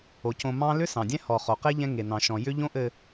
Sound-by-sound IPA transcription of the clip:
o˨ c õ˨ m ɑ̃˦ l ʏ˦ s ɑ̃˨ dʲ ɛ̃˦ h ɔ˨ χ o˨ q e˦ ʎ ɛ̃˦ ŋ e˨ n ɑ̃˨ ʃ ɔ̃˨ j ʏ˦ ʎ õ˦ ʔ ɘ˨

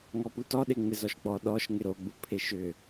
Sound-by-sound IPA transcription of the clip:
ŋ ɔ p u t ɔ ɗ e ŋ͡m ɪ z ɔ ʃ ɡ͡b ɔ ɗ ɔ ʃ ŋ ɪ ɾ o ɡ͡b u pʰ e ʃ ʏ

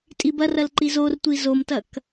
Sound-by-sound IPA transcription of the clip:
tʼ i b ɐ r ɐ l ǃ i z o r tʷ i z o m t ɐ k

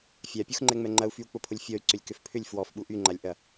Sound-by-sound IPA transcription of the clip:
fʲ a pʲ u x ŋ͡ǃ ɛ ŋ͡m ɛ ŋ͡ǃ ɐ u̯ f y u̯ k͡p ʊ pʰ ʊ lʲ fʲ ɔ y̯ ǀ ʏ lʲ k ʏ f pʰ ʏ lʲ f w ɔ f ɓ u ʔ y ŋ͡ǃ a lʲ ʔ ɐ

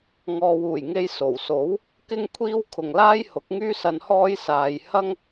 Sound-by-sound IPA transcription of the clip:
ŋ ɔː˨ w uː˨˩ j ŋ e˧ j s o˨˩ w s o˨˥ w | k ɪ˥ ŋ kʷʰ iː˥ w kʰ ʊ˨ ŋ l aː˥ j h ʊ˨˥ k̚ ŋ yː˥ s ɐ˧ n h ɔː˥ j s aː˧ j h ɐ˥ ŋ

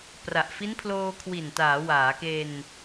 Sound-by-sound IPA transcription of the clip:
p r a˨˩ ʔ f i˦˥ n pʰ l oː˧ kʰ w i˨˩ n t aː˩˦ w aː˩˦ k e˧ n

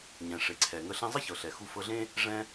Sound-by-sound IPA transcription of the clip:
ɲ ɛ̃˩ ʂ e˩ ǀʰ ɛ˩ ŋ ə˧ ɬ ẽ˧ zˤ ɤ˥ ç ɤ˩ ɬ ɛ˩ x u˧ f ɤ˧ ɮ ẽ˥ | ʐ ɛ̃˧

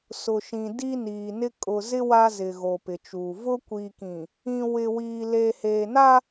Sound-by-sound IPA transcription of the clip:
s ʊ˨ ʃ ĩ˨ d i˦ n iː˨ n ɪ˦ kʼ ʊ˨ z ɪ˦ w a˦ z ɪ˨ ɣ o˨ p ɪ˨ t͡ʃ uː˨ v ʊ˦ kʷ iː˨ k ĩ˨ | ĩ˨ w ɪ˨ w iː˨ l eː˨ h eː˨ n a˦

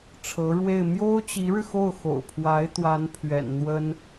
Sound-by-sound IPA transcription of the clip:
ʈ͡ʂʰ ɤ˧˥ ɻ w e˥˩ ɪ̯ m j o˥ ʊ̯ t͡ɕ i˧˥ ɻ ɻ̩˧ x o˥˩ ʊ̯ x o̰˨˩ ʊ̯ pʰ w a˧˥ ɪ̯ t̪ w a˧˥ n pʰ ɥ ɛ̰˨˩ n n̪ w ə˥ n

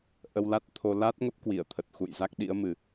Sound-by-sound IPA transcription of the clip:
ʔ ə˧ w l a˦˥ t̚ t̪ʰ o˧ l a˦˥ t̚ ŋ ə˦˥ p̚ k w i˧˩ ə̯ t̪ʰ ə˨˩ t̚ x ṵ˧˨ j z a˦˥ k̚ ɗ ḭ˧˥ ə̯ m ɨ˨˩

